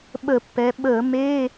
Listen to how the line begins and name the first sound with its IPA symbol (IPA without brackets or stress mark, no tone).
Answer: ɓ